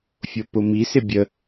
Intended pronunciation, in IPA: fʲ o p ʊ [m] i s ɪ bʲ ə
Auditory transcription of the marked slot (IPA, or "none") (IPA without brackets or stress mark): m